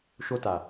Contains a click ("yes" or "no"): no